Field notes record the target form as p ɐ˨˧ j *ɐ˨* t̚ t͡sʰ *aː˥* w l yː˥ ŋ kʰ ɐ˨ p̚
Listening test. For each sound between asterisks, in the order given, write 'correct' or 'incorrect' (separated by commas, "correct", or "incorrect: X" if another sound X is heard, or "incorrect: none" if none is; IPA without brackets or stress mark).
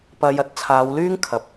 incorrect: ɐ˧, incorrect: aː˨˧